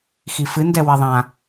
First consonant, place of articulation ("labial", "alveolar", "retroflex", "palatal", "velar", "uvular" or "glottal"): velar